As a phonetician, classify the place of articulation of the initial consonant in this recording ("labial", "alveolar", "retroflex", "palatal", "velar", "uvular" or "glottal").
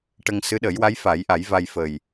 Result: retroflex